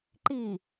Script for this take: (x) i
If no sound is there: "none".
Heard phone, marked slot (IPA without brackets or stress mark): ǃ